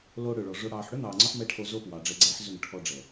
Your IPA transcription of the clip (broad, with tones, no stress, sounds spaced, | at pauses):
l o˧ ɽ ø˨ ɭ ɔ˨ ʐ o˧ ɽ ɑː˨ ħ ɽ ʏ˦ n̪ ɑː˨ ŋ͡ǀ ɔ˧ ħ m ɛ˦ ʈʰ o˧ z o˦ p w ɑ˨ ɖ͡ʐ ɛ˧ ɡ͡ǀ ɛː˦ ħ z ʏ˦˨ ŋ ʈʰ ɔ˧ ɖ͡ʐ ɛ˨